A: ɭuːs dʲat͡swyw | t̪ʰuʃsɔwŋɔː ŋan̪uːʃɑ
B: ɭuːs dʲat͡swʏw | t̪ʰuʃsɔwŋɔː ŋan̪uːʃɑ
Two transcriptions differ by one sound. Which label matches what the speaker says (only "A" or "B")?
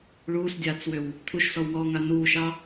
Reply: B